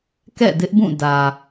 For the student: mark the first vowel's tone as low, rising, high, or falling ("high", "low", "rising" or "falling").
falling